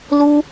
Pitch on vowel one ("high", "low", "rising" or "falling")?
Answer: high